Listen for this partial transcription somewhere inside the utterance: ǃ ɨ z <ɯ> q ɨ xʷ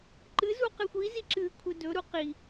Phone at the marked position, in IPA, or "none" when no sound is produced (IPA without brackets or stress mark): u